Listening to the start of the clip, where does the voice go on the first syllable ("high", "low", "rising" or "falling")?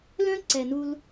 high